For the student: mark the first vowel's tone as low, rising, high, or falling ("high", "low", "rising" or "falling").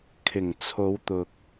low